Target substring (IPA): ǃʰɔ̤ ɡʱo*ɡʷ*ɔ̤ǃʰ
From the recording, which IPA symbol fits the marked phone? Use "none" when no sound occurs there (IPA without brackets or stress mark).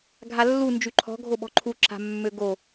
ɓ